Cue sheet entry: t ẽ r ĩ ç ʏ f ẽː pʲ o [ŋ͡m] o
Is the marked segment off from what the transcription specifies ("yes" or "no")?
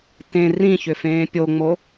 no